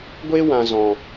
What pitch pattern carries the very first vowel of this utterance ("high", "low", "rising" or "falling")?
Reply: high